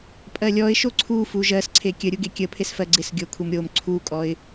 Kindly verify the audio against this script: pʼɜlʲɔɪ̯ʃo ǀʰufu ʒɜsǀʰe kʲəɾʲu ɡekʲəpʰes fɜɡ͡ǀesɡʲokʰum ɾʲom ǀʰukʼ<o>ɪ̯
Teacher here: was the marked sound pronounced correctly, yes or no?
no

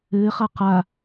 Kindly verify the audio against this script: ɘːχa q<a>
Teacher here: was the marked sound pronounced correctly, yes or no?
yes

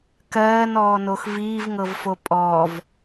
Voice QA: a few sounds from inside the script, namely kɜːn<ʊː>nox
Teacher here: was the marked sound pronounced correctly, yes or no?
no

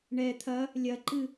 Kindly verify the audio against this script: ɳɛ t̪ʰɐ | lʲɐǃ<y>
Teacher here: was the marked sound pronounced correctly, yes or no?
no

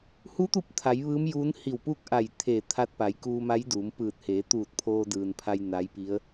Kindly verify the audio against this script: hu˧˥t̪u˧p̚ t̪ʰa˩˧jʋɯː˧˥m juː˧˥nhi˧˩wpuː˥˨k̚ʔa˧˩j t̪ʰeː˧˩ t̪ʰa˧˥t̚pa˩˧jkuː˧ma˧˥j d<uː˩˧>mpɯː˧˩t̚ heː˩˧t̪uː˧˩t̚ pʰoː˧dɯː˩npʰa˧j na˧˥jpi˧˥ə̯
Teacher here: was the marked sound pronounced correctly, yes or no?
yes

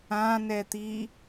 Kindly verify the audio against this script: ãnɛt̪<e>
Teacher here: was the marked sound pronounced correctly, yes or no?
no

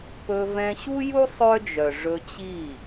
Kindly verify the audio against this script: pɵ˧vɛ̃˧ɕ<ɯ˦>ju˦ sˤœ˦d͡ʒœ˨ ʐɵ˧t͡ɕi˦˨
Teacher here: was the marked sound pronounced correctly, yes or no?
no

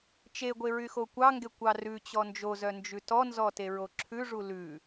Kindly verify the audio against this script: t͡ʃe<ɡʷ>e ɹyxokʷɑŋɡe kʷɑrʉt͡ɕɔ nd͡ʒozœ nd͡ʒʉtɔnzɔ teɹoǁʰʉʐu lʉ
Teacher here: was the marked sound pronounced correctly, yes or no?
yes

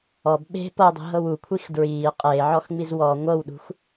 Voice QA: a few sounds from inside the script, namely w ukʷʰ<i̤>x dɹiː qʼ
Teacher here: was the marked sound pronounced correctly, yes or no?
no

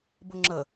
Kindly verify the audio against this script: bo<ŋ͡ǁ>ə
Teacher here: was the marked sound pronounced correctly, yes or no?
yes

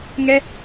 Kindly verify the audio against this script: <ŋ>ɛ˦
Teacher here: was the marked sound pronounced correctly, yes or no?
yes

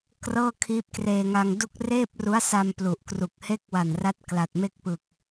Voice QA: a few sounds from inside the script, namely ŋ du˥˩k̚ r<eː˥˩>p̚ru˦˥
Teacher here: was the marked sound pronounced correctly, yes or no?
yes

